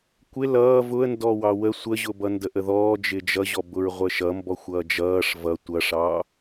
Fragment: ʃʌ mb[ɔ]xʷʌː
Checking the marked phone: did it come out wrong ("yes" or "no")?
no